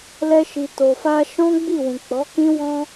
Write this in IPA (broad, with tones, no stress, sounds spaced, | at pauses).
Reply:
l ɛ˧ ʃ i˨ t o˨ f a˧ ʃ ɔ̃˦ ɡ͡b i˦˨ w ũ˨ k͡p ɔ˨˦ k ĩ˦ w ɔ̃˦